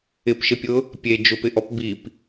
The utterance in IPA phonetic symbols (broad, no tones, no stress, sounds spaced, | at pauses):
ɪ p ʃ ɪ pʲ ʊ | pʲ e d͡ʒ ʊ p ɪ ʔ ɔ p b i p